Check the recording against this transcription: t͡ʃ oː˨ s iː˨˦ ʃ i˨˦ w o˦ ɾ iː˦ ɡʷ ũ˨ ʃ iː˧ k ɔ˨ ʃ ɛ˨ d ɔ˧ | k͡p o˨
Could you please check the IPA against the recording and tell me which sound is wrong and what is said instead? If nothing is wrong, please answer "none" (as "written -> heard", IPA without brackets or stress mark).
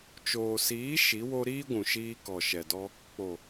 none